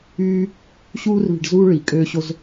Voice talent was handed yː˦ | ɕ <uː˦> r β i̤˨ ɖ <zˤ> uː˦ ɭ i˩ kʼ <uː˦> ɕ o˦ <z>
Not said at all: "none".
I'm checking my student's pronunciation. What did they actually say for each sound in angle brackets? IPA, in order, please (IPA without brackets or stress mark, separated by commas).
uː˦, z, øː˦, z